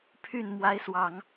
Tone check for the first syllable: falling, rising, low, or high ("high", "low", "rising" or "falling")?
falling